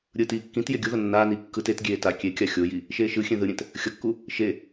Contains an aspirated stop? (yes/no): no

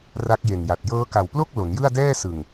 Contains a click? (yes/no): no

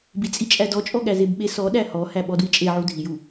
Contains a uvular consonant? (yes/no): no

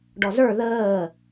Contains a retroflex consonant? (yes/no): yes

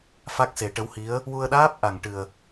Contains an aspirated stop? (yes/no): no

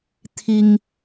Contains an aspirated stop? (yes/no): yes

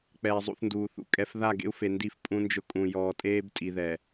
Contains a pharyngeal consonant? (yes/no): no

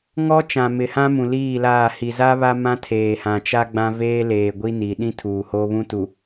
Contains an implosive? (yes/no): yes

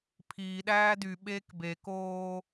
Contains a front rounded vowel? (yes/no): yes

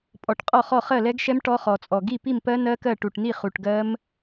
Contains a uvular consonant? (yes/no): yes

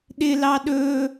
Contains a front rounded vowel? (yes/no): no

